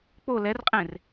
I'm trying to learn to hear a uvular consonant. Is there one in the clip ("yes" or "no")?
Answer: yes